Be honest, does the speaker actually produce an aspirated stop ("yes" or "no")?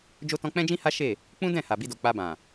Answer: no